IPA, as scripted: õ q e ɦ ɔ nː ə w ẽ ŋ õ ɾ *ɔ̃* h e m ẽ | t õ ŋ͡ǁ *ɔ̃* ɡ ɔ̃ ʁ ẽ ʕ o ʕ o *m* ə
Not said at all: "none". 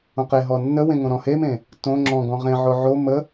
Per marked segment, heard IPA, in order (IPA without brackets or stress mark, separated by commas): ɔ̃, ɔ̃, m